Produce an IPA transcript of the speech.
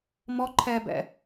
m ɔ ǃʰ ɛ b ɛ̰

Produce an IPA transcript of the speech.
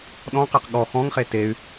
ɗ ɔ̃ q e q ɠ ɔ x ɔ̃ ŋ χ e t e y̯

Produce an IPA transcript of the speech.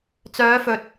t͡s œː˨˧ f ɵ˨ t̚

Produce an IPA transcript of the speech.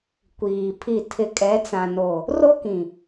kʷ iː˨ pʰ i˦˨ tʰ ɪ˨ kʼ ɛ˨˦ t͡s ã˨ n o˨ | r o˦ k ĩ˨

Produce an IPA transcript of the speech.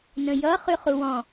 n ə̃ j ʌ χ ʉ χ u w ɔ̃

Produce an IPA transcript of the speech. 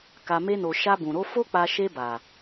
k a˨ m e˧ n o˨ ʃ a˧ b ũ˨ ɾ o˨˦ f o˦ k͡p a˧ ʃ e˧ b a˨

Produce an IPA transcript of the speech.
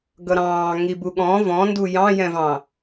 ɡ ʌ ɾ ɑ̃ː ŋ i b u ɠ ɔ̃ v ɔ̃ n d u j ɑ̃ j ɛ̃ v ɑ̃

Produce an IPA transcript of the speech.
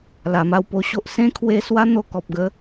l a˨˩ m a˥˧ w p o˧ ɕ o˦ ʔ s ẽ˦ kʰ w e˧ s w a˦ n̪ o˧ k ɔ˨ p̚ ɡ ə˦

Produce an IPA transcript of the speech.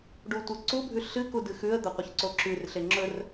ɖ u tʷ ɨ ǀ u bʱ ʉ ɬ ɨ k u d ɨ x ʉ ə̯ d̪ ɐ qʷ ɨ ç ǀ o ǁ ʉ r ɬ e ŋ͡ǁ ɵ r

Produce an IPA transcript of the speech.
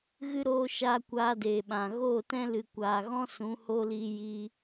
ɣ ɨ˦ ɾ oː˧ ʃ aː˦ kʷ aː˧ d eː˨ ɓ ã˨ ɣ oː˦˨ t ɛ̃˦ l ɨ˨ kʷ aː˨ ɣ ɔ̃˦ s ũ˨˦ h o˦ l i˧ j i˧

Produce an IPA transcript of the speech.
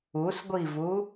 u s ɡʷ i v u

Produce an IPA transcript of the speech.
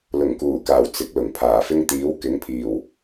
l ʊ˨˩ ŋ k uː˨˩ k aː˨˩ w t͡s ɪ˨˥ k̚ l ʊ˨˩ ŋ pʰ aː˨˩ f ɪ˥ ŋ t̪ iː˨˥ w k ɪ˨˥ ŋ pʰ iː˨˩ w

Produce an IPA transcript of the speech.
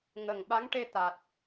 ŋ ə˨˩ ŋ ɓ a˧˥ ŋ ʈ e˧ t̪ a˨˩ t̚

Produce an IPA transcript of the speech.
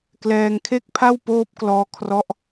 k l ɛː˧ ŋ kʰ e˥˩ k̚ pʰ a˥˩ w p oː˦˥ p̚ k l ɔː˧ kʰ r ɔ˦˥ ʔ

